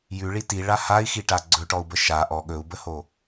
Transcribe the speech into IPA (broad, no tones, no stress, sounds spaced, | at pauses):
j ʉ ɭ i t i ɭ a h a i̯ x i ʈ a ɡ͡ǀ ɵ ʈ ɔ u̯ b ə ʃ a ʔ ɔ ɠ ɵ u̯ b ə h o